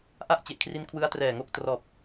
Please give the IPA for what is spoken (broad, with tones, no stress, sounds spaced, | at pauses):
ʔ a˥˩ ʔ t͡ɕ e˨˩ ʔ kʰ r i˦˥ n kʰ w ɯ˦˥ a̯ t r ɛː˨˩ ŋ o˥˩ k̚ t r ɔː˨˩ p̚